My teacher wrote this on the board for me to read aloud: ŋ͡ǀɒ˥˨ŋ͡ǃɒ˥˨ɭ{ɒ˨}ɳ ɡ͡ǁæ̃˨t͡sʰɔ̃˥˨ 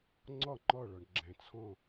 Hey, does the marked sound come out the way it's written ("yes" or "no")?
yes